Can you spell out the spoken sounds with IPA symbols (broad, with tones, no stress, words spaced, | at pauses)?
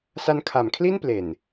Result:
sa˧nkʰa˩˦mkʰli˥˩n ple˨˩n